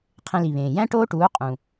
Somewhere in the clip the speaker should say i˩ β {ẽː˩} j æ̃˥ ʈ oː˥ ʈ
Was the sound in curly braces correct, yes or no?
yes